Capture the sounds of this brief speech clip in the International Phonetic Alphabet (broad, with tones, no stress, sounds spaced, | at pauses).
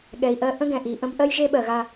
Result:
ɠ ɛ˨ i̯ ʔ ɜ˦ ʔ ə̃˦ ɡ ɛ̃˨ ʔ i˨ ʔ ə̃˦ b ʔ ɜ˦ j ʒ e˦ ɓ ɜ˨ ɣ a˦